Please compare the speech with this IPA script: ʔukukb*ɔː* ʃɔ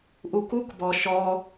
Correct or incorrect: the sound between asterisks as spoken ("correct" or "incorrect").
incorrect